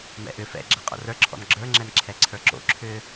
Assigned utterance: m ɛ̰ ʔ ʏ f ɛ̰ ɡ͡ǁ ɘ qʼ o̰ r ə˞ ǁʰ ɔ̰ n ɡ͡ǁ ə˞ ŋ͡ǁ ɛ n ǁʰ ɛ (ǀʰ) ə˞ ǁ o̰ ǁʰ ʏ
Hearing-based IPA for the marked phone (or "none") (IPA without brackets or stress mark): ǀʰ